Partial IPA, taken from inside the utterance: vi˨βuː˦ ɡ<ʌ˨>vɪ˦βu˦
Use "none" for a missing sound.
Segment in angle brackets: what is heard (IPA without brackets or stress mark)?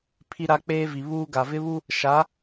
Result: a˨